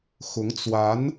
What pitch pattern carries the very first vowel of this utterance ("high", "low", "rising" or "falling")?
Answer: rising